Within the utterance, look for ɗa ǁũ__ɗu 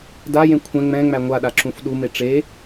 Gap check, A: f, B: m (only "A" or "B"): A